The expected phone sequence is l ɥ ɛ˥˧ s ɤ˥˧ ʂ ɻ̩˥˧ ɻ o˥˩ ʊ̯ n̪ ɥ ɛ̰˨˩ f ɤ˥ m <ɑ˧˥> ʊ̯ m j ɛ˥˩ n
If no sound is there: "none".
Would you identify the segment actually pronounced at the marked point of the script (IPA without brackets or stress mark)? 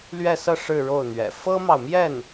ɑ˨